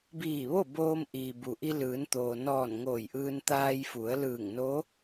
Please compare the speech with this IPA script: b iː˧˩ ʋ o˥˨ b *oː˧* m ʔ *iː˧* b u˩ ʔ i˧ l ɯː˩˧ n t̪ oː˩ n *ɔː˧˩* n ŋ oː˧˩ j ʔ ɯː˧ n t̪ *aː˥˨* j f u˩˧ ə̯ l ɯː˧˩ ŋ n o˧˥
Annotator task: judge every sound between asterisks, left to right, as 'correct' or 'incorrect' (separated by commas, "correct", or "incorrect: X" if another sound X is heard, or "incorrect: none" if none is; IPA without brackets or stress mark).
correct, incorrect: iː˩, correct, incorrect: aː˧